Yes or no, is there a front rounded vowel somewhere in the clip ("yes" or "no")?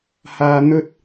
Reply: no